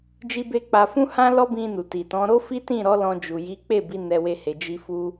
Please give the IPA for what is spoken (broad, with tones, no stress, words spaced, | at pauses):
d͡ʒi˦be˦k͡pa˧ fũ˦hã˦ lɔ˦ bĩ˧nu˨ ti˨tɔ̃˨˦ ɾo˦fi˦ tĩ˦˨ɾɔ˨˦ lɔ̃˧ d͡ʒu˨ ji˨˦ k͡pe˦˨bi˨˦ nɛ˧we˧he˨ d͡ʒi˧fu˧